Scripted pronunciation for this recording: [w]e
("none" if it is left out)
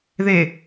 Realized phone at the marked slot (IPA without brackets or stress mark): ð